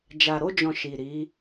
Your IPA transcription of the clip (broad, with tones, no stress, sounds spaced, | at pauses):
d͡ʒ a˨ ɾ o˧ d͡ʒ ɔ̃˨ ʃ i˨ ɾ i˨˦